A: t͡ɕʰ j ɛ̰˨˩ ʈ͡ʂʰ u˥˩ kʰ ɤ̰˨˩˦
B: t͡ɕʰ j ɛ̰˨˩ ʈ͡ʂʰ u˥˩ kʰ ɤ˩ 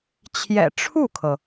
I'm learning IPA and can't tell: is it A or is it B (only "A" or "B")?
B